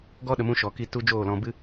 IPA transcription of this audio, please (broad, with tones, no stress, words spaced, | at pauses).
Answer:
ɡɔ˦ ɗə˧mũ˦ ʃɔ˨ki˧ tu˦ d͡ʒoː˦˨lɔ̃˧ bɨ˦